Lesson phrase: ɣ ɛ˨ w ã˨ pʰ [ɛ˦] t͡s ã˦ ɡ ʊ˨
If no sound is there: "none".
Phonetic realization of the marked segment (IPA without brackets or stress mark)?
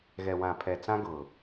ɛ˨